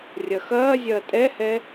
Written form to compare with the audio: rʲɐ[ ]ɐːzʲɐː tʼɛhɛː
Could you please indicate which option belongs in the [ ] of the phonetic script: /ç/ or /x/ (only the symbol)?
x